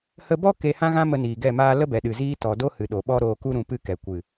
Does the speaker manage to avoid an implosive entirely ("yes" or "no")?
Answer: no